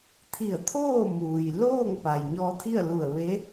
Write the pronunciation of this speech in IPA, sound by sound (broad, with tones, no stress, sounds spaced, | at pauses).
t̪ʰ i˧˩ ə̯ t̪ʰ oː˥˨ m uː˩ j l oː˥˨ ŋ p a˩ j ɲ ɔː˧ t̪ʰ i˥˨ ə̯ l u˧˩ ə̯ ʋ e˧˥